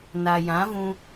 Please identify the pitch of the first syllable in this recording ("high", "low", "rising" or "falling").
low